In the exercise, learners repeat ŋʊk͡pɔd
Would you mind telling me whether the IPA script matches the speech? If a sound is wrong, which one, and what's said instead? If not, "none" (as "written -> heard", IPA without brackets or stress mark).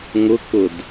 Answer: ɔ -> ʊ